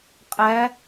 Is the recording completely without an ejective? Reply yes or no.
no